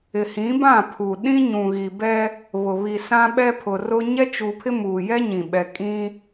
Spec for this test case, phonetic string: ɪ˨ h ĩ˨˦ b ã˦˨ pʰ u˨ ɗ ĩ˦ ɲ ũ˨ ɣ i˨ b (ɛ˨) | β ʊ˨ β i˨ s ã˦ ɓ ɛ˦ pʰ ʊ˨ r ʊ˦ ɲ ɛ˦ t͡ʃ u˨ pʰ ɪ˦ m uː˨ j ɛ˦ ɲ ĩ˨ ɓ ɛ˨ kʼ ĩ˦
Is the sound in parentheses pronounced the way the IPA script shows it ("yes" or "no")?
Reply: no